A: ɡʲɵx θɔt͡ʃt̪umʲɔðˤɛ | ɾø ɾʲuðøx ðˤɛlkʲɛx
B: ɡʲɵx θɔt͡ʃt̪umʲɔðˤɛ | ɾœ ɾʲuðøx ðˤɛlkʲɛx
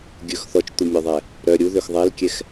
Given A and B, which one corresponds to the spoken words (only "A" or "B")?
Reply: B